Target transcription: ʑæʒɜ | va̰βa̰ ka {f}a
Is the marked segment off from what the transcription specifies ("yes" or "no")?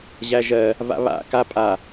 yes